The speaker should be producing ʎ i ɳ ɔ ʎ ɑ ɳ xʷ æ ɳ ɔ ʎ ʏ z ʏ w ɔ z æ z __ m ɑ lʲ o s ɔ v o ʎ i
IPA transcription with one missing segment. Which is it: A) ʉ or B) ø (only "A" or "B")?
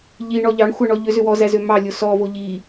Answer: B